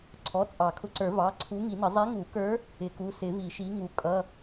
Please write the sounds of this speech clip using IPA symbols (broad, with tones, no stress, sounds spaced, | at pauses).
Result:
ǀʰ ɔ˩˧˩ t͡sʼ ɑ˨˩˦ kʰ ʊ˨˥ ǀ ə˞˨˩˦ v ɑ˩˧˩ ǀʰ u˨˥ ŋ i˨˩˦ n ə˨˩˦ zˤ i˨˥ ŋ u˨˩˦ k ə˞˨˥ | ɪ˨˩˦ k u˩˧˩ s ɪ˨˩˦ v i˨˩˦ ʃ i˨˥ ŋ u˨˩˦ kʼ ʌ˩˧˩